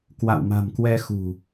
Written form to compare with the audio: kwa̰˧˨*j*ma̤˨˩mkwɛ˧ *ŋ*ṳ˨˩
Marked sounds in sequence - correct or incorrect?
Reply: incorrect: w, incorrect: x

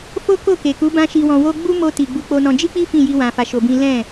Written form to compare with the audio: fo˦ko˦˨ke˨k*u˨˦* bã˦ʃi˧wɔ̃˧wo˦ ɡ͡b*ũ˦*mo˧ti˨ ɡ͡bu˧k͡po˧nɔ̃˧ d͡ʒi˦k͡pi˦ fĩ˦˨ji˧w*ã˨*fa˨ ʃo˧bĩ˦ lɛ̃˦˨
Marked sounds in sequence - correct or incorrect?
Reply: correct, incorrect: u˦, correct

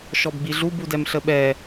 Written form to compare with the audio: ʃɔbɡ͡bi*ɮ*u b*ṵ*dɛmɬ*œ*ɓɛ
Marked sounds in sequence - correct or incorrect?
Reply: correct, incorrect: u, incorrect: ə

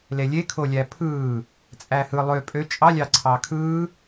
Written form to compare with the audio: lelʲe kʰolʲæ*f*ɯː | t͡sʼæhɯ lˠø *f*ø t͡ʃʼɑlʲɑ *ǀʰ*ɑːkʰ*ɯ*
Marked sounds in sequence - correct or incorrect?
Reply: incorrect: pʰ, incorrect: pʼ, correct, incorrect: ɯː

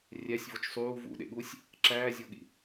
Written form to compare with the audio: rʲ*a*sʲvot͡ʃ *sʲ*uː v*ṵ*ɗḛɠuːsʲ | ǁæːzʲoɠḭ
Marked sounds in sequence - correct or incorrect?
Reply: incorrect: æ, incorrect: sˤ, correct

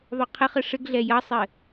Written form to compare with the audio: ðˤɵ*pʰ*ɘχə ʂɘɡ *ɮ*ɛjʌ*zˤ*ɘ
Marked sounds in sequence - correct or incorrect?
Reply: incorrect: qʰ, correct, incorrect: sˤ

